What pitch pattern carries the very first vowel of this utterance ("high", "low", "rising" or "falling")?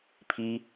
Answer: high